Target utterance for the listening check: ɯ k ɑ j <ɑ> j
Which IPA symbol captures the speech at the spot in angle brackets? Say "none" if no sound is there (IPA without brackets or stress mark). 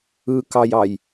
ɑ